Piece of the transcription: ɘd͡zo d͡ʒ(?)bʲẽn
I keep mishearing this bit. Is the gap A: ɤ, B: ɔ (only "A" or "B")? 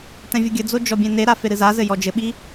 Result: B